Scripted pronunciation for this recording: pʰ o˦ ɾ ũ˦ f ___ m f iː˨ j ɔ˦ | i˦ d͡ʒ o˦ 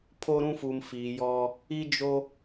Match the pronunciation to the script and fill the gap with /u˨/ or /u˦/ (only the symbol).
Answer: u˨